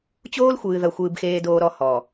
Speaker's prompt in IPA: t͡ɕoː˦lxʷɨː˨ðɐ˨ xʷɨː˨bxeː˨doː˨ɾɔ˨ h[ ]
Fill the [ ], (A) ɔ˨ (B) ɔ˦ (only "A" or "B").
A